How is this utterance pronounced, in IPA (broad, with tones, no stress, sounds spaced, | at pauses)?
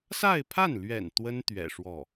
s a˥˧ ɪ̯ pʰ a˥˩ n l ɥ ɛ̰˨˩ n t̪ w ə˥ n t̪ ɥ ɛ̰˨˩ ʂ w ɔ˥˩